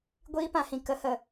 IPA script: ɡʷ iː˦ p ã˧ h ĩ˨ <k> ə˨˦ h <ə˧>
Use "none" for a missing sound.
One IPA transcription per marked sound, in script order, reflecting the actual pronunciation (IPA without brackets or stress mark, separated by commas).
k, ə˨